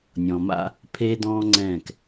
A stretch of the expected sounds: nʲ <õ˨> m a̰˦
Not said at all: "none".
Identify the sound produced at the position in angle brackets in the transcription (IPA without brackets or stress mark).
ɔ̃˨